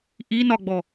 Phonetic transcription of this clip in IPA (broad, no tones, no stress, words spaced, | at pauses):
ʔi nɒɡ͡bɔ